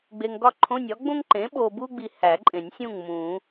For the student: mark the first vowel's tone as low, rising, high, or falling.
low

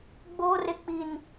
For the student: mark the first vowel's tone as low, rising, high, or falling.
high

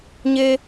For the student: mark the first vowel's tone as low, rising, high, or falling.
high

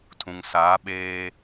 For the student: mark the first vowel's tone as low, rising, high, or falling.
low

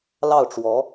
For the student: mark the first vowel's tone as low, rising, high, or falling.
falling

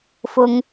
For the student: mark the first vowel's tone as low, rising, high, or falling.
high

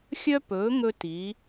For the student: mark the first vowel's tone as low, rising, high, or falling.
high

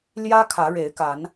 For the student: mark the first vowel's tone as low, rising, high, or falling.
high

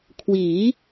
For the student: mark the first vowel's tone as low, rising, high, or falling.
rising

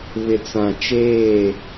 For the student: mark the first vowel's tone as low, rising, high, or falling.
low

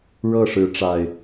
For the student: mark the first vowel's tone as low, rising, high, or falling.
falling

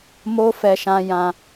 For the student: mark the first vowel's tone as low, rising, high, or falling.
high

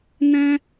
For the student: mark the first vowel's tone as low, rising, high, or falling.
high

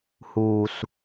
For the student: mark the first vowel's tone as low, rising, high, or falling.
low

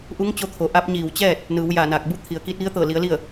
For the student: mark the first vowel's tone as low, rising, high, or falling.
rising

